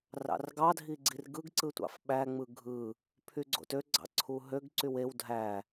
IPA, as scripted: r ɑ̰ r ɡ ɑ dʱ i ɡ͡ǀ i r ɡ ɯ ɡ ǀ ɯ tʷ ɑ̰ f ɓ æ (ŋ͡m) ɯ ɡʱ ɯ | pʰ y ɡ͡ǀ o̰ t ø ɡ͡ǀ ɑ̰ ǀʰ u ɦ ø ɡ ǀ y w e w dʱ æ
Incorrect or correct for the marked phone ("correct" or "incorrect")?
correct